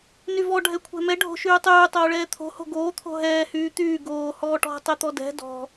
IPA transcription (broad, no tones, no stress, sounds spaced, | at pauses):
n y v ɔ ɖʱ ɛ kʷʰ ɛ̤ m ɛ ɖʱ o̤ ʃ yː tˤ yː tˤ oː ɭ ɛː t̪ʰ o̤ h o̤ ɡ oː t̪ʰ o̤ ɦ ɛː h yː t̪ yː ɡ oː h ɔː ʈ ɔ̤ tˤ ɛ t̪ ɔ d ɛ̤ d ɔ̤